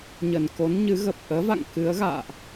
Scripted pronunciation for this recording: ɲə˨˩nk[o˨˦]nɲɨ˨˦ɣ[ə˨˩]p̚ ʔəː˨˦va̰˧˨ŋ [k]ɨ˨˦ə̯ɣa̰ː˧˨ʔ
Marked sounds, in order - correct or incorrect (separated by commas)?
correct, correct, correct